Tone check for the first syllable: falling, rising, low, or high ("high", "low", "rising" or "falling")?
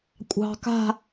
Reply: low